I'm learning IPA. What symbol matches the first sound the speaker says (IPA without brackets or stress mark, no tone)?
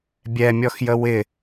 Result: bʲ